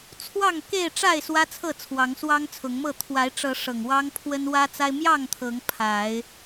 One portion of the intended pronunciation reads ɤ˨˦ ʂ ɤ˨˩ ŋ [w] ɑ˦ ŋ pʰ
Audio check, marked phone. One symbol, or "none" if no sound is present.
w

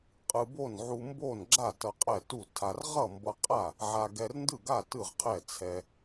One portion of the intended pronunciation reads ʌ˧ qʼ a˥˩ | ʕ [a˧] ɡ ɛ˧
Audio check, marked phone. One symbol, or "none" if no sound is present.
a˧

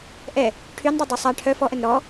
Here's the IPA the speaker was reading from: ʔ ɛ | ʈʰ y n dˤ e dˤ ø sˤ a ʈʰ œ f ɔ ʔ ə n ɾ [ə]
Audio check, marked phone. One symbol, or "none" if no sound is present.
ɔ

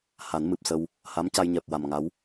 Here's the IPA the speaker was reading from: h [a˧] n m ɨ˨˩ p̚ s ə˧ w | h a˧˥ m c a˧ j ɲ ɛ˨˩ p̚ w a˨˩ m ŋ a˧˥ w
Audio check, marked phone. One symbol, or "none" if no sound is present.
a˨˩˦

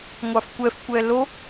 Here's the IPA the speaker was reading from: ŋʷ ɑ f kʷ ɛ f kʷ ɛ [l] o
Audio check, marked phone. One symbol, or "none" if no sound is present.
l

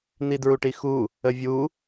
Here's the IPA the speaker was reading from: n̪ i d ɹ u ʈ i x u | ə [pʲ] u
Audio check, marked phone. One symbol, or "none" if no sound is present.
vʲ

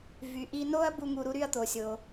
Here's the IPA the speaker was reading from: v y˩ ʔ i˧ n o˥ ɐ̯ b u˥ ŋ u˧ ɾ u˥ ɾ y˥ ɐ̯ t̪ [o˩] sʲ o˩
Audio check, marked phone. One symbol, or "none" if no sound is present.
o˩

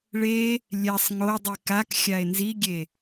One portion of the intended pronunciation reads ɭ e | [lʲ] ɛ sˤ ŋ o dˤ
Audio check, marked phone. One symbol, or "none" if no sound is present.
lʲ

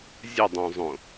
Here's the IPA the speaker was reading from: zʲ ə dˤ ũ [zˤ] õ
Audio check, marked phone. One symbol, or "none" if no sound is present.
zˤ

